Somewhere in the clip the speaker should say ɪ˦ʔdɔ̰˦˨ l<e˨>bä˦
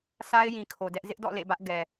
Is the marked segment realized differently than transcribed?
yes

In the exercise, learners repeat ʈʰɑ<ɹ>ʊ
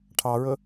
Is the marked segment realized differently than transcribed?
no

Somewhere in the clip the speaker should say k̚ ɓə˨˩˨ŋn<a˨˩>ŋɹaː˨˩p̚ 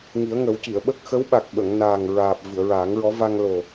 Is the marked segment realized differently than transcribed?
yes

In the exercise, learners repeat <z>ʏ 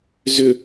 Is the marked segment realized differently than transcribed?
no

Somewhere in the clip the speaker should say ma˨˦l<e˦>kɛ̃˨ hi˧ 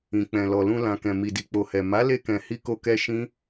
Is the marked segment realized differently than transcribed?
yes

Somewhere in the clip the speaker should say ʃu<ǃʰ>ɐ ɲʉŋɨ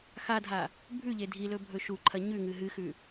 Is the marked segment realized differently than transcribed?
no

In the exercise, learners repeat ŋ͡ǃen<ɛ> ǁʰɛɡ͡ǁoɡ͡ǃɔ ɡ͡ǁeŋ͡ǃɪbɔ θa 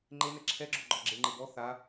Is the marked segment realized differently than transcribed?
no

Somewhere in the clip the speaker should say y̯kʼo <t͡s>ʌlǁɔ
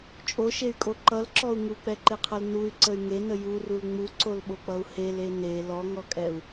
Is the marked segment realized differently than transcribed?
yes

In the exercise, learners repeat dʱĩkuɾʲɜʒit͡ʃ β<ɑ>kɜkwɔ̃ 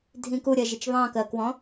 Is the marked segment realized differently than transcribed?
yes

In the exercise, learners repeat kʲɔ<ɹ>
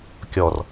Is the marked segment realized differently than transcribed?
yes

